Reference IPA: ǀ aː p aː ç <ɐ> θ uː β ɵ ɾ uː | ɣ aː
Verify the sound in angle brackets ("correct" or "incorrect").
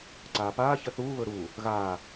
correct